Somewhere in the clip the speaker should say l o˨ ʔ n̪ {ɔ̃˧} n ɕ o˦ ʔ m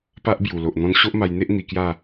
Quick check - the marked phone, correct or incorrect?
correct